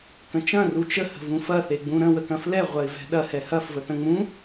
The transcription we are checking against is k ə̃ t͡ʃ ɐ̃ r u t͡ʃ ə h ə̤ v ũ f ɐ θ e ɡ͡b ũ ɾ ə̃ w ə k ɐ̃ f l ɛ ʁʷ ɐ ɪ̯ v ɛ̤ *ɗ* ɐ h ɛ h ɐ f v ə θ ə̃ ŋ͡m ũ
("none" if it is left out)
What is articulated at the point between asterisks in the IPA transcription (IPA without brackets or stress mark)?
ɗ